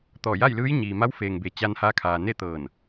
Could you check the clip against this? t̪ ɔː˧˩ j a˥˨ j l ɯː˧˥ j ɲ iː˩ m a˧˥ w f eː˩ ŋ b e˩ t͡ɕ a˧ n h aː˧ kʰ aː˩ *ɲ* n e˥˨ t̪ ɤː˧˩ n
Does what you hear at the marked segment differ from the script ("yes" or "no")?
yes